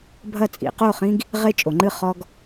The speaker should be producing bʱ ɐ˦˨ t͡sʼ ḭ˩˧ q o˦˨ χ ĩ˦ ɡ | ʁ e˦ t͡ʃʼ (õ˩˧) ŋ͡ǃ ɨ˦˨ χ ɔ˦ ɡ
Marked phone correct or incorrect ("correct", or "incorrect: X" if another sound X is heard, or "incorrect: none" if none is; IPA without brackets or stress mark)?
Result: incorrect: o˩˧